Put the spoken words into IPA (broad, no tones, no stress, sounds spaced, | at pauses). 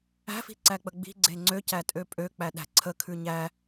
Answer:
æ̤ f i̤ ǀ æ k͡p ə ɡ͡b i̤ ɡ͡ǀ e ŋ͡ǀ ø c æ tʼ ø pʼ ø k͡p æ ɗ æ̤ ǀʰ ə kʰ ʉ ɲ æ